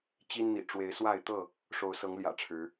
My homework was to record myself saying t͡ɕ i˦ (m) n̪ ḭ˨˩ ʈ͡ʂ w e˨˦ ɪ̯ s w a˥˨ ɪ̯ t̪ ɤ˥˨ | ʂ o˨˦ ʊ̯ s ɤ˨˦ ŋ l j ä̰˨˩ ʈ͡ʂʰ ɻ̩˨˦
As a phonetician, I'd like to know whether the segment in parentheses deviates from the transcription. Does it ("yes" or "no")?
yes